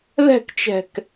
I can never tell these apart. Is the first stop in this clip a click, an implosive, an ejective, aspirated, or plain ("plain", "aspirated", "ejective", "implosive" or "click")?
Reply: plain